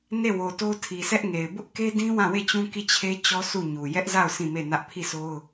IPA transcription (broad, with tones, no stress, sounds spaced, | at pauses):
n e˦˨ w o˨ t o˦ tʰ i˨ s ɛ˦ ʔ ŋ e˨ ɪ̯ b ʊ˦ ʔ k e˦ d ĩ˦ w ã˦˨ w e˦˨ t͡ɕ ũ˦ k i˦˨ t͡ɕʰ e˦ t͡ɕ ɔ˦ s u˦˨ ɲ u˨ j ɛ˦ ʔ z a˦˨ ʊ̯ s ĩ˦˨ m e˦˨ n ä˦ ʔ pʰ i˦˨ s o˦ ʊ̯